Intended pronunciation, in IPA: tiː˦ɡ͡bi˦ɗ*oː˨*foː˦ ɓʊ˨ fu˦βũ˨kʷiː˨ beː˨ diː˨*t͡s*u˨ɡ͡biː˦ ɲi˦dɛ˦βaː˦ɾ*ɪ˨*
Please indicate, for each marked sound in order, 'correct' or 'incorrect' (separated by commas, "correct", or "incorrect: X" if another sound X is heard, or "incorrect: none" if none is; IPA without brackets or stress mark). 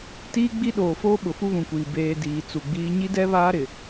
correct, correct, correct